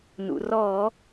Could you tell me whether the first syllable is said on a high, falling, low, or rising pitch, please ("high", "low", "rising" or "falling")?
low